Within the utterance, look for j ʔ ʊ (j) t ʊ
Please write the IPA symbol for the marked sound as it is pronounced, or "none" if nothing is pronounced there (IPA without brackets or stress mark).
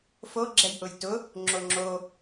j